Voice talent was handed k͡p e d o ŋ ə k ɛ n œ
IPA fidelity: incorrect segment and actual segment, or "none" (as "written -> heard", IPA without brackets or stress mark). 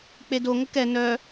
none